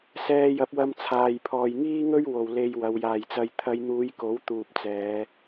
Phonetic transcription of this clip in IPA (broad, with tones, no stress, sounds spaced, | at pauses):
s ɛː˧ j ɐ˨˥ p̚ w ɐ˧ m t͡sʰ aː˨ j pʰ ɔː˨ j ŋ iː˥ ŋ ɵ˥ ɥ w o˨ w l e˧ j w ɐ˨˧ w j aː˨˩ j t͡s ɐ˨ j t̪ʰ ɐ˨˧ j n̪ uː˨˧ j k o˨˥ w t̪ uː˨ p̚ t͡s ɛː˨˧